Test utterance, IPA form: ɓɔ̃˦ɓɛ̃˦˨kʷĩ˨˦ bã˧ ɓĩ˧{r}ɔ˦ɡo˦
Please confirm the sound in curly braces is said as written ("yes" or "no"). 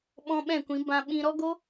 no